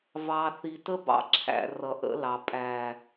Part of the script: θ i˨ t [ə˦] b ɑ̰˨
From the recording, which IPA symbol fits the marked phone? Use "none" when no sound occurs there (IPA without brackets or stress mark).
ə˦